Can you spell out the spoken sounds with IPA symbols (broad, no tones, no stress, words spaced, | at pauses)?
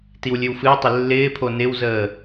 tiwlʲɨwfɨwtˤɪ lːɪːpʰo nɪwzəː